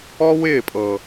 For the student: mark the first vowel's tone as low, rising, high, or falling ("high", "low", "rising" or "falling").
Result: high